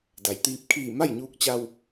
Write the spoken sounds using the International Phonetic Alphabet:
d a˩ j t̪ iː˧ p̚ kʰ iː˧˩ m a˥˨ j ɲ uː˧ k̚ t͡ɕ a˧ w

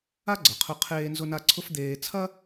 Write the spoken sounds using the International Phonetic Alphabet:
a˥ ɡ͡ǀ ɐ˩ qʰ ʊ˧ qʰ eː˧ n z ʊ˧ n a˧ ǀʰ ʊ˥ f d̪ eː˧ t͡sʰ ɐ˥

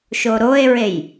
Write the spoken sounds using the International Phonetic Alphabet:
ʃ o ɾ o e̯ ɹ e j

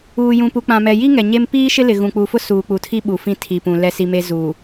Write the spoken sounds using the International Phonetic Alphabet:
uː˨ j ũ˨ p u˨ k͡p ã˨ m ɛ˨ j i˦ ŋ ɛ˨ ɲ e˦ m p iː˦ ʃ ɪ˦ l ɪ˨ ɣ ũ˨ k͡p u˨ f ʊ˦ s uː˨ k͡p u˨ tʰ i˦ ɓ u˨ f ĩ˦˨ tʰ i˨ p ũ˨ l ɛ˦ s i˦ m e˦ z uː˨

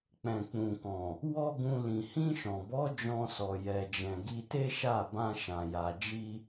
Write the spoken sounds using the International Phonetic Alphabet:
k͡p ɛ̃˨ k͡p ũ˨ k ɔ̃˨ | w ɔ˦ ɡ ũ˧ l ĩ˨ h ĩ˧ ʃ ɔ̃˨ b ɔ˨˦ d͡ʒ ɔ̃˧ s ɔ˨ j ɛ˨ d͡ʒ ɛ̃˨ ɡ i˧ t e˦ ʃ a˦˨ b ã˧ ʃ ã˨ j a˨ d͡ʒ i˧

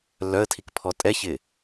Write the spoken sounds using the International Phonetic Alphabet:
lː œ ə̯ tʰ i k pʰ ɔ tʼ ɛ ç ɪ

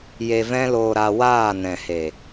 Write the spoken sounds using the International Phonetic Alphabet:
j e˧ v ɛ̃˦ l oː˧ ɾ a˧ w aː˦˨ n ɛ̃˨ h e˨

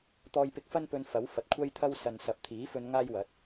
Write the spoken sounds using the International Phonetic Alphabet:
t̪ ɔː˧ j p ɪ˧ k̚ f ɐ˥ n p ɵ˧ n f ɐ˨˥ w f ɐ˨ t̚ kʷʰ ɐ˥ j t̪ʰ ɐ˥ w s ɐ˨ n s ɐ˨ p̚ t̪ʰ iː˨˥ f ɵ˧ n ŋ aː˥ j w ɐ˨˥ t̚

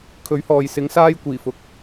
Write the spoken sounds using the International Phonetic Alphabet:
kʰ ɵ˨˥ ɥ h ɔː˨ j s ɪ˨˧ ŋ s aː˧ j kʷ iː˨˩ f ʊ˨ k̚

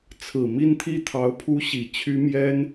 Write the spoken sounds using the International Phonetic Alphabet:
t͡sʰ ɹ̩˨˩ m i˥˧ n t̪ʰ i˥˩ t̪ʰ ɑ˧˥ ʊ̯ pʰ u˥ ɕ i˨˩ t͡ɕʰ y˥ m j ɛ˥ n

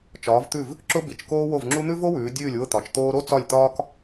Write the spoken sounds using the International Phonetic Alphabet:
t͡ʃ ɒː˨˦ v t̪ ʉ˥˨ v | ǁ ʊ˥ b i˨˦ t͡ʃ k oː˥ w o˥˨ v ŋ͡ǁ u˥ n̪ ʉ˥ v o˥ w ʉː˨˦ dʲ ʉː˥˨ lʲ w ʊ˥˨ t̪ ɒ˨˦ t͡ʃ t̪ oː˥ ɾ o˥ t͡s ɒ˥˨ lʲ t̪ ɒː˥ k

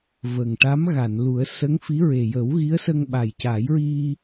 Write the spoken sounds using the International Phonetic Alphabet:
v ə˨˩ ŋ ʈ a˧˥ m ɣ a˨˩˨ n l u˨˩˦ ə̯ s ə˧˥ ŋ f i˧˥ ɹ e˨˩ j ə˨˩˦ w ɣ i˧˥ ə̯ s ə˧ ŋ ɓ a˨˩ j c a˨˩˦ j ɹ i˧

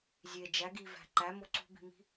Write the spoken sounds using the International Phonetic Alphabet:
zʲ e d͡ʒ æ ɡ i v æ̤ ǃ æ m o ǀ ṳ b i̤ m i̤

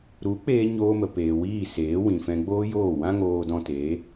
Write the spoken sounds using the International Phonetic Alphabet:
ɾ u˨˦ k͡p eː˧ ɲ oː˧ m ə˨ p eː˨ w iː˦˨ s eː˨˦ w ĩ˨ f ɛ̃˧ ɡ͡b oː˦ j oː˦˨ w ã˦ ŋ oː˧ d ɔ̃˧ t eː˨˦

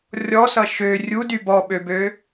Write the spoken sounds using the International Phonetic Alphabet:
rʲ ɔ s ʌ ʃ ø rʲ u d y b ɔ ɓ ø b ø

